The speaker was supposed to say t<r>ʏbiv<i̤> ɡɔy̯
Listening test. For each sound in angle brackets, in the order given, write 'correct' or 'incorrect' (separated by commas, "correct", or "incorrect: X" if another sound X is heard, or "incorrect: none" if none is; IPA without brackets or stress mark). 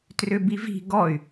correct, correct